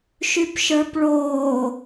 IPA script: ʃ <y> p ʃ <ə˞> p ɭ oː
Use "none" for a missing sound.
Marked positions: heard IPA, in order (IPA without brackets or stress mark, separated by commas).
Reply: y, ə˞